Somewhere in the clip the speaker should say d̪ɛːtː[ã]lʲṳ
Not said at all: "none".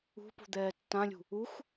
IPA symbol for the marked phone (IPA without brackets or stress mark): ã